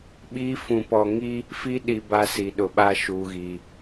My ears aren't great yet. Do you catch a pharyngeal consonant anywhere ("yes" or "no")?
no